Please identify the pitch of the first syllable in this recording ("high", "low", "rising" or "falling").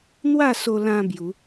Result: falling